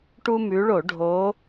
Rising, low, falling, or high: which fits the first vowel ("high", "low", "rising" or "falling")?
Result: high